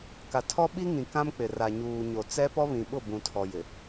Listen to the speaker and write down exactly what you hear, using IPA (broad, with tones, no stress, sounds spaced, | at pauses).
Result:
k a˨ tʰ ɔ˦ ɓ i˦ ŋ ĩ˨ k ã˦ m k͡p ɪ˨ r a˨ ɲ uː˨ ɲ o˨ t͡s ɛ˦ p ɔ˦ β ĩ˨ ɓ ʊ˦˨ b ũ˨ tʰ ɔ˨ j ɪ˨